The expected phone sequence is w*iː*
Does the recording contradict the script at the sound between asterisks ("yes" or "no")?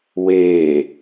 yes